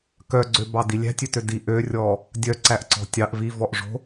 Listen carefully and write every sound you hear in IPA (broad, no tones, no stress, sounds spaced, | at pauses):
k œ ɡ͡ǀ ø b ɑ d i lʲ æ̤ tʲ ø t ø d i ʔ ø rʲ ɔ | dʲ œ ǀ æ ʔ ǀ ɔ̤ tʲ ɑ ʔ v i v ɔ ʔ ʐ o̤